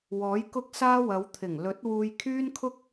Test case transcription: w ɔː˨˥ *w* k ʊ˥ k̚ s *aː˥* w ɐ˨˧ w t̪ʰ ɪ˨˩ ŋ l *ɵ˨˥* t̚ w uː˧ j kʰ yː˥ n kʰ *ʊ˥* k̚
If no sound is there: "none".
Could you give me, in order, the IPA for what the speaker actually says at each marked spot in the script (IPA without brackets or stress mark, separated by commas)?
j, aː˥, ɵ˨˥, ʊ˥